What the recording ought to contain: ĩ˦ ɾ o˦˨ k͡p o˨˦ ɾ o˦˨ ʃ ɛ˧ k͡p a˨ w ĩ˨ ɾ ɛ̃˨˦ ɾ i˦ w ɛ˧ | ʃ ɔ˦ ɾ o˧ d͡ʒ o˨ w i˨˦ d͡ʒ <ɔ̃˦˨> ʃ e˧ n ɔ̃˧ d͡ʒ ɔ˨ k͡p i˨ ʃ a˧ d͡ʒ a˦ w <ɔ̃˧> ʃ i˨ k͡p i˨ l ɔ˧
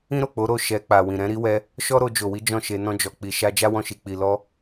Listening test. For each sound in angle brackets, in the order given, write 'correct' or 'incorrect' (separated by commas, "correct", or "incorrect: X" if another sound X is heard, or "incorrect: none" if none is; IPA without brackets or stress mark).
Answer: correct, correct